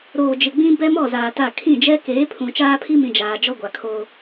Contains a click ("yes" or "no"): no